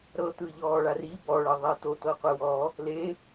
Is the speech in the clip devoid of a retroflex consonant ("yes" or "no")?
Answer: no